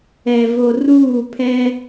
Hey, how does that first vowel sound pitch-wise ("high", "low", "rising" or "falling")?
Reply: low